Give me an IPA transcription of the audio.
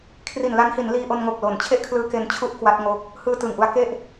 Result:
kʰ r i˨˩ n l a˦˥ n h i˩˦ n l iː˧ ʔ o˧ n ŋ o˨˩ k̚ l o˨˩ n t͡ɕʰ e˥˩ ʔ kʰ l ɯː˦˥ k e˧ n t͡ɕʰ u˥˩ ʔ k w a˦˥ t̚ ŋ o˦˥ k̚ | h ɯː˧ t ɯː˨˩ ŋ ʔ u˧ a̯ k e˥˩ ʔ

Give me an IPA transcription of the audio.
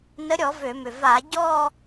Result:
n ə˨˥ ɾʲ ɔ˧˩˧ v ø˧˩˧ m ʏ˨˩ v a˧˩˧ ɟ ɔ˥˧

